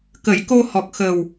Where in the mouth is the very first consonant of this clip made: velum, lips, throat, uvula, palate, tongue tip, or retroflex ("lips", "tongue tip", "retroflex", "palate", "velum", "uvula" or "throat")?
velum